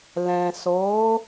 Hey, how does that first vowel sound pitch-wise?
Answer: low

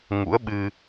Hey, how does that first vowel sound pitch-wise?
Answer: rising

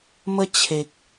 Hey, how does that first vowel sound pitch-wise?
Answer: high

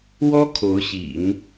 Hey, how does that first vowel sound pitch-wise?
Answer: high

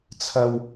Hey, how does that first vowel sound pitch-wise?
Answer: low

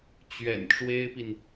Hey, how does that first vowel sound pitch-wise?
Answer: low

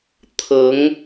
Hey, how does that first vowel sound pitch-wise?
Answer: rising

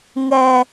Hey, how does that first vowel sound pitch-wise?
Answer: high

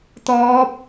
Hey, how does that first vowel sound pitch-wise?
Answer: rising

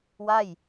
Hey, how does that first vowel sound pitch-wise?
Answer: falling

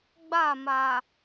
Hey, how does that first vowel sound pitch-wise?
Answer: falling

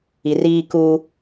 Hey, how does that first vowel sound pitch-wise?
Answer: low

